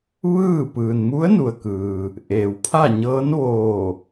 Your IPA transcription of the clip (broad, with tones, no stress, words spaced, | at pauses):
ʋɯː˥˨ pɯː˩nmu˧˥ə̯ nu˩ə̯ kɯː˩ | ʔeː˩wpʰa˥˨ ɲɤː˧˥nʋoː˧˩